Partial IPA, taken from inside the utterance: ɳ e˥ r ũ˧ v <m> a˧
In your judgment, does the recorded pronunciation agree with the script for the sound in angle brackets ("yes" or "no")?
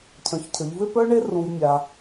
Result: no